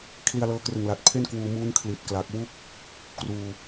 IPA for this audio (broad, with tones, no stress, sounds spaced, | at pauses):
kʰ l i˧ a̯ l ɤː˧ k r ɯ˨˩ ŋ l a˨˩ t̚ pʰ e˥˩ n k w uː˧ m uː˦˥ n kʰ l i˨˩ t̚ k l a˨˩ k̚ w u˦˥ k̚ | k r uː˧